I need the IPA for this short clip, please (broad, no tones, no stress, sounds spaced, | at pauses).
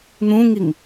n̪ ũ ŋ i ŋ